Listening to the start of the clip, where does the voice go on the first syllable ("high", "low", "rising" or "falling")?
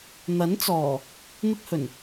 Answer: rising